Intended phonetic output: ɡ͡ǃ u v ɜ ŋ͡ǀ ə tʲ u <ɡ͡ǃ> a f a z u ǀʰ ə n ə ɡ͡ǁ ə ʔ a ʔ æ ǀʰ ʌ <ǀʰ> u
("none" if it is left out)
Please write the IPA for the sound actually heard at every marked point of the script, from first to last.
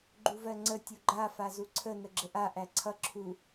ɡ͡ǃ, ǁʰ

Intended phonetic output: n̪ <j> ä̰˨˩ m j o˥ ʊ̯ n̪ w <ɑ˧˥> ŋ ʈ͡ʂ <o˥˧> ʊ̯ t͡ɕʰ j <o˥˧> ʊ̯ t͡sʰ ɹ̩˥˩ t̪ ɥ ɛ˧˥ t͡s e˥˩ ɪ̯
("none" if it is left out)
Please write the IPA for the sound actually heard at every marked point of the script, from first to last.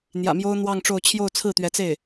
j, ɑ˥˧, o˥˧, o˥˧

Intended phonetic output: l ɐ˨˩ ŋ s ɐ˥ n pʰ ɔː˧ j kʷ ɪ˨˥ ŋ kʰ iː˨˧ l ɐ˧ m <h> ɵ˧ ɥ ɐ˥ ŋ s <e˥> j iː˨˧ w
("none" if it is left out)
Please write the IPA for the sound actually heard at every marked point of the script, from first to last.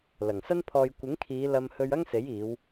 h, e˨˥

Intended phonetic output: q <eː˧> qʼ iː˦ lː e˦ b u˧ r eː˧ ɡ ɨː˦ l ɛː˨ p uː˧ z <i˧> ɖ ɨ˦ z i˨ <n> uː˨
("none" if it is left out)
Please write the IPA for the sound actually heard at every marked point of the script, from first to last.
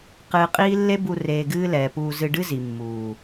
ɨː˧, ɨ˧, mː

